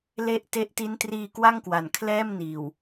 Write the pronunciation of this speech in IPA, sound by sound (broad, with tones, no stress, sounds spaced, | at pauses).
l e˥˩ ʔ t e˦˥ ʔ t i˦˥ n t r iː˧ k w a˥˩ ŋ k w a˩˦ n kʰ l ɛː˥˩ m n iː˨˩ w